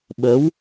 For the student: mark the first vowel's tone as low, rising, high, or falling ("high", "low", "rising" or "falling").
rising